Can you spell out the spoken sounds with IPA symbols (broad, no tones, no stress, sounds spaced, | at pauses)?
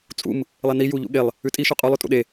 t͡sʼ ṵ m | lˠ e n i j u ʎ ṵ ɠ e lˠ | ʉ tʼ i ʃ u qʼ u lˠ ʉ tʼ ṵ ɗ e